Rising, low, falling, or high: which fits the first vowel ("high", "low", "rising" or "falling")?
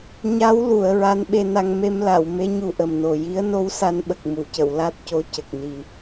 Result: rising